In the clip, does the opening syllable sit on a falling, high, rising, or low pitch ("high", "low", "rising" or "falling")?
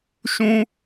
high